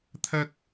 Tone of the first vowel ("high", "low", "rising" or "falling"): high